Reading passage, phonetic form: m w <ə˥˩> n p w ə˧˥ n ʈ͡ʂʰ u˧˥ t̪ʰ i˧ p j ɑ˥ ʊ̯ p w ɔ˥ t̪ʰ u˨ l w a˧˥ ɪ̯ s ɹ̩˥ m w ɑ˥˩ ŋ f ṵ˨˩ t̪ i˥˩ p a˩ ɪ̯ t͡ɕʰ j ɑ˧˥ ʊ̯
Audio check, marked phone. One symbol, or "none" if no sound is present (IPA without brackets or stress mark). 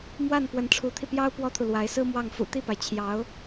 a˥˩